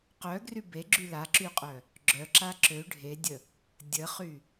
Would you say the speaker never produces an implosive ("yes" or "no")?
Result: yes